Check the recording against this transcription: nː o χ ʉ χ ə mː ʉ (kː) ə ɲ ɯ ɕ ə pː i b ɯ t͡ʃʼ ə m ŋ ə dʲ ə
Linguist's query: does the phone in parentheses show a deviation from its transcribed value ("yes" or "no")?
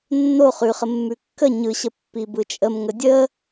no